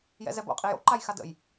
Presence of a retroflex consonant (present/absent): absent